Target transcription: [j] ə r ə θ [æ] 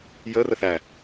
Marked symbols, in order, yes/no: yes, yes

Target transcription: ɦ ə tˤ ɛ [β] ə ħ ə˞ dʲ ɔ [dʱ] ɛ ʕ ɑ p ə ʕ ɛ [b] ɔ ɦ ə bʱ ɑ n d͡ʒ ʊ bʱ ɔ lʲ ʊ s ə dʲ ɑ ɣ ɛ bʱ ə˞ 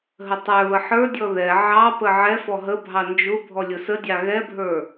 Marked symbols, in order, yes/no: yes, no, no

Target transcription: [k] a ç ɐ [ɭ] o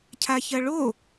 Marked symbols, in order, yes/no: no, yes

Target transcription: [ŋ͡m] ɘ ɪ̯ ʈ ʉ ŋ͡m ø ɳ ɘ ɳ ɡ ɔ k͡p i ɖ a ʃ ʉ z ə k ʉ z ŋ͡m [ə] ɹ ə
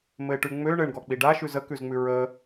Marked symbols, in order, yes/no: no, no

